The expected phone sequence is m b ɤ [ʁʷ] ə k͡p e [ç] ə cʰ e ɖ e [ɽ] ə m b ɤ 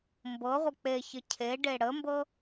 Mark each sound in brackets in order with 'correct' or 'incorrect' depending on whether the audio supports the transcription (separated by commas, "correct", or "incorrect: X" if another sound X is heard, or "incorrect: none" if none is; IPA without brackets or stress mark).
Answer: correct, correct, correct